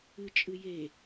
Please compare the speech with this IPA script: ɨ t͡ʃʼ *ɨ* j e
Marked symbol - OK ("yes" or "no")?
yes